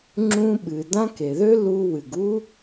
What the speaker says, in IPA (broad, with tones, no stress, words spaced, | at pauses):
ŋ͡ǁũ˦ɓɨ˩ dã˦ke˩ðø˥ lu˦ wɨ˩ɡu˥